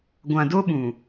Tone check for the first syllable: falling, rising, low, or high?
low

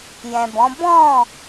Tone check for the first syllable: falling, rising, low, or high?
low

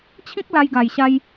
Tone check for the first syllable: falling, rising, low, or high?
high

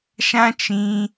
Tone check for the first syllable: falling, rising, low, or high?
high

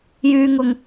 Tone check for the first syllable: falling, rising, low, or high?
high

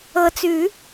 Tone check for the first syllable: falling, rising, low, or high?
low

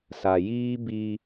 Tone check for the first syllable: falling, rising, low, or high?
low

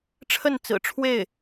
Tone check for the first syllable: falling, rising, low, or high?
falling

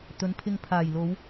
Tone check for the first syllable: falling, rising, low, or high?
rising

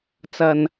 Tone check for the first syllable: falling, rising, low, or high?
low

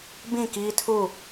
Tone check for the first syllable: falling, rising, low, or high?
falling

